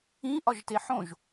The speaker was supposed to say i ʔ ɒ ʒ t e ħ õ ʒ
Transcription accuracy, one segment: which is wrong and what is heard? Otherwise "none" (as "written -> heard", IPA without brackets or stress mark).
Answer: i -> ĩ